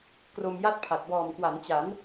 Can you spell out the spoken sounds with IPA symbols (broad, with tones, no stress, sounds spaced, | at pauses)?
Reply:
k r o˧ m j a˥˩ t̚ pʰ a˨˩ t̚ b ɔː˨˩ m k w a˩˦ n t͡ɕ a˩˦ n